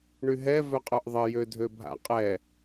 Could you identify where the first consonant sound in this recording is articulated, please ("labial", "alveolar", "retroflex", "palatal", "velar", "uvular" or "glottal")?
retroflex